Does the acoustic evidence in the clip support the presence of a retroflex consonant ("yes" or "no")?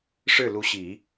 yes